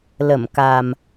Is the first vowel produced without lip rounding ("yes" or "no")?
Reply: yes